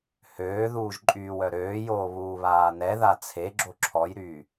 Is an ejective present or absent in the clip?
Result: present